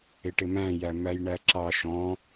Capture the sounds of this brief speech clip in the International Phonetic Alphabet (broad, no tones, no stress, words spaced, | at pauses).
ɪʈɪmæ̃jæ mæjɳæǁɑ ʃɔ̃